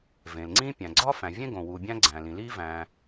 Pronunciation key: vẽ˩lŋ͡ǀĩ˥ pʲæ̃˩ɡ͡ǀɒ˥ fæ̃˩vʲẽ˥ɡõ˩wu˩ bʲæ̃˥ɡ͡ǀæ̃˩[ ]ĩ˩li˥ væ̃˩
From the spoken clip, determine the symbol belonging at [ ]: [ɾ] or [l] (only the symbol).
l